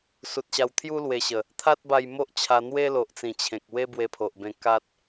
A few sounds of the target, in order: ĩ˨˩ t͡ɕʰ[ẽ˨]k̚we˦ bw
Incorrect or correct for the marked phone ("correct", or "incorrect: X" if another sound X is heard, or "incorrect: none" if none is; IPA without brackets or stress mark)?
correct